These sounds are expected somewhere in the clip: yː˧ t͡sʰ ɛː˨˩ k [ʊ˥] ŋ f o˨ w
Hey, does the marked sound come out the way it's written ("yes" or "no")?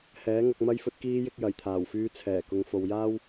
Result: no